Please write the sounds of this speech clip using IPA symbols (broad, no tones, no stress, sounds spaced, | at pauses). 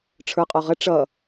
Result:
ʈ͡ʂʰ ə˞ qʼ ɔ ʁ ə ʈ͡ʂ ʌ